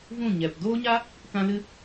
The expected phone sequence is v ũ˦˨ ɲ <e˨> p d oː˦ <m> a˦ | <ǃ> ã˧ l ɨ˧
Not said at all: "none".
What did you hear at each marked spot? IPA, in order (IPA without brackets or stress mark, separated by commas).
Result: ɛ˨, ɲ, k